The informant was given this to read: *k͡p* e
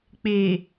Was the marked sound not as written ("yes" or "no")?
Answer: no